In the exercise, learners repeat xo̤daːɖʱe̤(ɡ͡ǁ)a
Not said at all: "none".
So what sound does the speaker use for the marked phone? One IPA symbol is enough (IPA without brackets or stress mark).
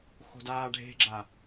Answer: ɡ͡ǁ